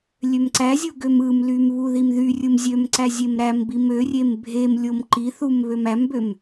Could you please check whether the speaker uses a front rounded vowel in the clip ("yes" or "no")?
yes